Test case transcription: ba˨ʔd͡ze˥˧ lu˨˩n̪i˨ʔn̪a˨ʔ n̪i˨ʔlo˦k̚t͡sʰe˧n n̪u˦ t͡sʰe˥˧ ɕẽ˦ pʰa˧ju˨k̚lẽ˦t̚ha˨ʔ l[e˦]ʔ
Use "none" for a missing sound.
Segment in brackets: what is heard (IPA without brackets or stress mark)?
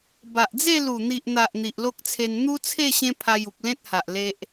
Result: e˦